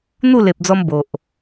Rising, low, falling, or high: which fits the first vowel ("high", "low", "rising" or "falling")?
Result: falling